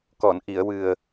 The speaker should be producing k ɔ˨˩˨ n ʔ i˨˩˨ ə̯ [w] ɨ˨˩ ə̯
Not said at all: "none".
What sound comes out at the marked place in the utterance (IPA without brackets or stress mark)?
w